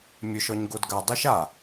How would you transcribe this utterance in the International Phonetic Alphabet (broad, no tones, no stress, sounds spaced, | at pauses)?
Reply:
mʲ ɵ ʃ ɔ ɲ ɡ o d ɡ a dˤ u ʃ a